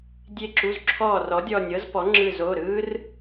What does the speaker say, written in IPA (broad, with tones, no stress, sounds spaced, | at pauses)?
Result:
dʲ e˧˩ ǁ u˩˧˩ z ǁʰ ɔː˧˩ r ɔ˩˥ dʲ ɔ˧˩ nʲ ɤ˦˥ z p ɔ˩˥ ŋ͡ǁ ɯ˧˩ z o˩˧˩ ɾ ɯː˦˥ r